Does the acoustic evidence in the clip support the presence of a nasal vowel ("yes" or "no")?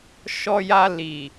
no